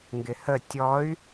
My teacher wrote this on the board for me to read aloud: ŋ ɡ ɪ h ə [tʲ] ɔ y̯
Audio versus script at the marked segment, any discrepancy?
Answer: no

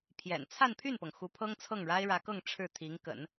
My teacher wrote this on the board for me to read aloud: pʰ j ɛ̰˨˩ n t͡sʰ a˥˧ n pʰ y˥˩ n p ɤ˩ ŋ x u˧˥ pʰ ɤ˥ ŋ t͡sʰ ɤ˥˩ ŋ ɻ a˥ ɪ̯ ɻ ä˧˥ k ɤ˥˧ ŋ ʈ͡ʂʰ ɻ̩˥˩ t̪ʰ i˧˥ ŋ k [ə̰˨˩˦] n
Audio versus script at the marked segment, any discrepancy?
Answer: no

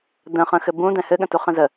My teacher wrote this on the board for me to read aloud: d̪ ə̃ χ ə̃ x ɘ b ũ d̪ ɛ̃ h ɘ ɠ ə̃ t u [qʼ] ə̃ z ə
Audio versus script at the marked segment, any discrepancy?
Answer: yes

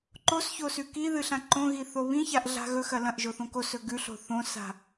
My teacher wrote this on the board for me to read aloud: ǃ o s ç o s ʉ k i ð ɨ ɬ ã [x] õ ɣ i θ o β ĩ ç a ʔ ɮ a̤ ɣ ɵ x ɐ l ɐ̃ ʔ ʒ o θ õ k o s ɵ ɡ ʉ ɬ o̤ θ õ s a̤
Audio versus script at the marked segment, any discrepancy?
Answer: yes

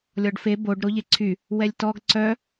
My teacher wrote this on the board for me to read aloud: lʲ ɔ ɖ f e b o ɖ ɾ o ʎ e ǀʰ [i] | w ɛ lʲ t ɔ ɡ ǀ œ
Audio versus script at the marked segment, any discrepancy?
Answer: yes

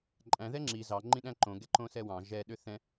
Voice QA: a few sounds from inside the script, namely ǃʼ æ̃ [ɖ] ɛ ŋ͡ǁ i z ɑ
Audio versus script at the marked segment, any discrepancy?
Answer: yes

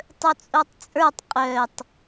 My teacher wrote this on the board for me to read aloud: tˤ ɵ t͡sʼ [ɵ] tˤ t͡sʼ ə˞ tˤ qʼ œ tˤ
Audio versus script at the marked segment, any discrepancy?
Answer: yes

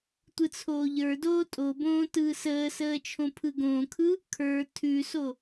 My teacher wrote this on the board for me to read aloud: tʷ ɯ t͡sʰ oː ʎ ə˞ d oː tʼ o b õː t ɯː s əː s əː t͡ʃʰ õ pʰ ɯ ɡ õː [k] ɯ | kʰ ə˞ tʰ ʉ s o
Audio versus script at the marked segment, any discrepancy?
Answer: yes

